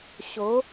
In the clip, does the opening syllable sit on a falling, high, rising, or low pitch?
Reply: rising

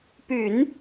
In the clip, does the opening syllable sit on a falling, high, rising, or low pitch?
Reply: low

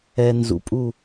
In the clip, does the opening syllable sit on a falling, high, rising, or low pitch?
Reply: low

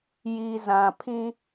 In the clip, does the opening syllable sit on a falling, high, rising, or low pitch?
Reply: low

